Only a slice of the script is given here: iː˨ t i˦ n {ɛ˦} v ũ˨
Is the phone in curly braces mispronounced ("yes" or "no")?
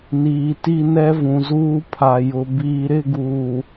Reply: no